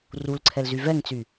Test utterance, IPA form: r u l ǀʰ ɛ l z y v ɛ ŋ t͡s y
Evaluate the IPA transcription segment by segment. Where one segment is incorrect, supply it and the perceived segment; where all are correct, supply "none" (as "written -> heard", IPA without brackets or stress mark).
none